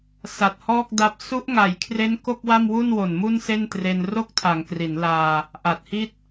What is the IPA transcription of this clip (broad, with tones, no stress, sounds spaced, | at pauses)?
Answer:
s a˨˩ t̚ h ɔː˥˩ k̚ d a˦˥ p̚ s u˦˥ ʔ ŋ a˨˩ j kʰ r e˦˥ n k o˥˩ k̚ w a˥˩ m w u˥˩ n w o˨˩ n m u˥˩ n s e˥˩ n t r e˧ n r o˥˩ k̚ tʰ a˩˦ ŋ k r i˩˦ n l aː˧ | ʔ a˨˩ t̚ h i˥˩ t̚